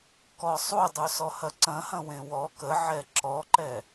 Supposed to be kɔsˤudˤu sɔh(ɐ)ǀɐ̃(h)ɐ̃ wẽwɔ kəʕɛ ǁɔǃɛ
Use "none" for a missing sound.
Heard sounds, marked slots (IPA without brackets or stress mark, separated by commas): ɐ, h